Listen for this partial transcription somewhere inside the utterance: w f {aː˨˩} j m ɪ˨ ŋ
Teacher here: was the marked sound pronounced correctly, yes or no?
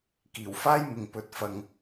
no